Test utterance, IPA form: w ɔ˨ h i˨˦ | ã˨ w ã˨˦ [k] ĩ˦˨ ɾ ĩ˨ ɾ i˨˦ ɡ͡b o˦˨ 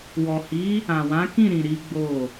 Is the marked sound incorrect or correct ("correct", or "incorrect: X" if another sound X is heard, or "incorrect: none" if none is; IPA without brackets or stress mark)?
correct